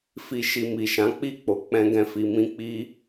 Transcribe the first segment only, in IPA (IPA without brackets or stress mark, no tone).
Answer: f